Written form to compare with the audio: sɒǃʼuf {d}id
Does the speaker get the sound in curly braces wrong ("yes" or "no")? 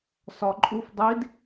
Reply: yes